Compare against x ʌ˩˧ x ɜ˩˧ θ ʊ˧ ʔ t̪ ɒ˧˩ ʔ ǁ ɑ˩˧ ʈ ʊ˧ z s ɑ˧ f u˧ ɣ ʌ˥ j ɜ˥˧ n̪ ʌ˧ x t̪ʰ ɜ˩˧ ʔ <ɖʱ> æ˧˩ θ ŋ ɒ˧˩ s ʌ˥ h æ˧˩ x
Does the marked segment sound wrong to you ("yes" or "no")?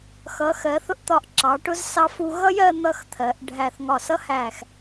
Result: no